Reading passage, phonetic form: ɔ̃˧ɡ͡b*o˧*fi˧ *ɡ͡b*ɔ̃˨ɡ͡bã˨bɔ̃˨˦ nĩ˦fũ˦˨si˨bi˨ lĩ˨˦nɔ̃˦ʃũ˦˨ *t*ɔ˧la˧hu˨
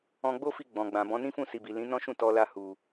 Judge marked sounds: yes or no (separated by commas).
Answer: no, yes, yes